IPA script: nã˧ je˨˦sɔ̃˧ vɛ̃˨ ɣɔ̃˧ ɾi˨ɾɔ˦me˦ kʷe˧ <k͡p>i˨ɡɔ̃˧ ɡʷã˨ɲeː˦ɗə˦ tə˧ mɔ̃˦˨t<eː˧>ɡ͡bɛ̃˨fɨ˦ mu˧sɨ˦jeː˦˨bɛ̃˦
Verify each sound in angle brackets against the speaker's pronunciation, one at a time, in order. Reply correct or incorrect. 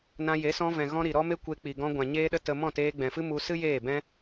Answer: correct, correct

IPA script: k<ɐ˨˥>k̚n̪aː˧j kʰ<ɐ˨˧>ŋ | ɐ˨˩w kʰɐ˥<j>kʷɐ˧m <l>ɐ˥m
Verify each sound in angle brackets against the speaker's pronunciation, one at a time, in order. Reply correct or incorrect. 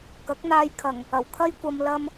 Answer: correct, incorrect: ɐ˨˩, correct, correct

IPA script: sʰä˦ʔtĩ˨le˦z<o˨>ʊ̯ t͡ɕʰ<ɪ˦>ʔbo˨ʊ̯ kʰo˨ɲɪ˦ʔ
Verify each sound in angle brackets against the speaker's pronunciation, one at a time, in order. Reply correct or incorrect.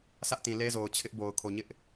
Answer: correct, correct

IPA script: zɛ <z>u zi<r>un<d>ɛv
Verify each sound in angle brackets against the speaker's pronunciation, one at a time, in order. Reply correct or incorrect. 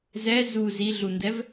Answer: correct, incorrect: ɮ, correct

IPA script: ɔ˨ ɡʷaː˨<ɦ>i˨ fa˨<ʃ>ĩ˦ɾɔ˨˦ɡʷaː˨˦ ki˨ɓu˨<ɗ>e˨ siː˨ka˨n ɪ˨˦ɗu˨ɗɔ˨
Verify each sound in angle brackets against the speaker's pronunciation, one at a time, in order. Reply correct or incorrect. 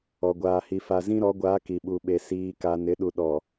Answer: incorrect: h, incorrect: z, incorrect: ɓ

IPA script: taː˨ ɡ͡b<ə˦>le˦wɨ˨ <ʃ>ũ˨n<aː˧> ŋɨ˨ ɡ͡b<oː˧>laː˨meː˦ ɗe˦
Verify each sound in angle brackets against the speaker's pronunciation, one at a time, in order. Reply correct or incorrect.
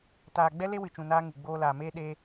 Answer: incorrect: ɛ˦, incorrect: t͡ʃ, incorrect: aː˦, correct

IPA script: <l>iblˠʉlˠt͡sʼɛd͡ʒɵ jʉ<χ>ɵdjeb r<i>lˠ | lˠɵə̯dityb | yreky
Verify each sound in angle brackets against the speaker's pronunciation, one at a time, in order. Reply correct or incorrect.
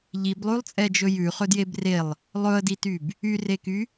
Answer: incorrect: ʎ, correct, incorrect: e

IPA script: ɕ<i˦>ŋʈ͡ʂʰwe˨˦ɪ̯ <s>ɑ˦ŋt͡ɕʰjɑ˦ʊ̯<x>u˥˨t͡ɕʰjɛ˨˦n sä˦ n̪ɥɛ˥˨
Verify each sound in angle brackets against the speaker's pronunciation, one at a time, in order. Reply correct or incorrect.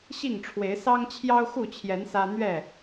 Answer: incorrect: i˥˨, correct, correct

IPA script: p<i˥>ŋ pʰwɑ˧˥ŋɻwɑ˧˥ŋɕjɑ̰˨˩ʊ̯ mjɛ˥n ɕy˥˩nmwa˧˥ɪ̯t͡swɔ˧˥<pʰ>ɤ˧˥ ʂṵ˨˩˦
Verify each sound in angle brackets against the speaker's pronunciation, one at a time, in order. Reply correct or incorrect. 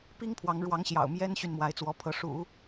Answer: correct, correct

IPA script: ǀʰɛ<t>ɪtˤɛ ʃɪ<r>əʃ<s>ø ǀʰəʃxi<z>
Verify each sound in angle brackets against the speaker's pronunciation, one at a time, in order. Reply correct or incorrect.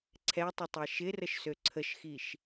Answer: incorrect: tˤ, correct, correct, incorrect: ʃ

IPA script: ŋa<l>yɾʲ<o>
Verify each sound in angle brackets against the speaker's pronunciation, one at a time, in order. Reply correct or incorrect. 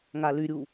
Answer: correct, incorrect: u

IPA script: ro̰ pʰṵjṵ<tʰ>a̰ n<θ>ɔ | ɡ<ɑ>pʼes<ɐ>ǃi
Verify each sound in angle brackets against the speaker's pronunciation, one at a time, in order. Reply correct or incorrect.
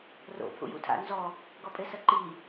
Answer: correct, incorrect: z, incorrect: ɔ, correct

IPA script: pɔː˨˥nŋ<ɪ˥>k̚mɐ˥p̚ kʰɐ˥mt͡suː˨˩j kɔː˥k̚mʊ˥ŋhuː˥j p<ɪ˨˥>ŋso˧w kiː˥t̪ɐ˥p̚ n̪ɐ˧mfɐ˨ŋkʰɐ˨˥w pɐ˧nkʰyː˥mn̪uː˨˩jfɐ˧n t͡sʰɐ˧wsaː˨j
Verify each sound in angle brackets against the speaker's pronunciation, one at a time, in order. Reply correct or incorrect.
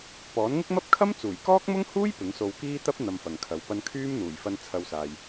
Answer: correct, correct

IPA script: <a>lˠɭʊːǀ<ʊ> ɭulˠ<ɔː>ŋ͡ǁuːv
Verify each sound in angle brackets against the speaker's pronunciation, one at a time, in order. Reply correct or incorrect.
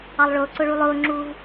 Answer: incorrect: ɑ, correct, incorrect: ʊː

